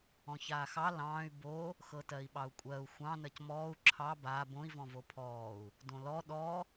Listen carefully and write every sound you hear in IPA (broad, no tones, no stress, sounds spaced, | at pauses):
ɔ̃ ç aː x ɑ l ɑ̃ː y̯ b o | x ɤ t ɜ i̯ ɓ ɑ u̯ kʷʼ ɜ u̯ xʷ ɑ̃ n ɜ c m ɔː u̯ ǁʰ ɑ b aː b õ i̯ v ɔ̃ v o pʰ ɔː u̯ | d õ l ɔ ɗ ɔ